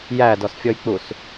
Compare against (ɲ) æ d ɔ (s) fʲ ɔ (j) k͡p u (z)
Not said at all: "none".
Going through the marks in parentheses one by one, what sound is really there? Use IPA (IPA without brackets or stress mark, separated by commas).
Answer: j, s, j, s